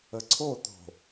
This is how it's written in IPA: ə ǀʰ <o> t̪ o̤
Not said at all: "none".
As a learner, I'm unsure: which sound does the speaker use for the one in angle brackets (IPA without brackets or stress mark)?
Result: o